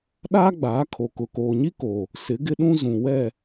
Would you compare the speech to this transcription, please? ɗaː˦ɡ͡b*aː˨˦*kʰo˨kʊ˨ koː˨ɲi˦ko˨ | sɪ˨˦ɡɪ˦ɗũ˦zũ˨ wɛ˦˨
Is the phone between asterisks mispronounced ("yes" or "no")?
no